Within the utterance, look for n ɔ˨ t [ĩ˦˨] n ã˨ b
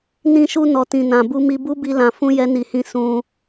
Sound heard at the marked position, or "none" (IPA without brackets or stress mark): ĩ˨